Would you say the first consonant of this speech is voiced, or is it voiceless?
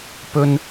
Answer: voiceless